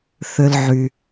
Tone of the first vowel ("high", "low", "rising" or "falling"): low